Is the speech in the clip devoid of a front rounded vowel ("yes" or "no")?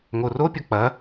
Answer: yes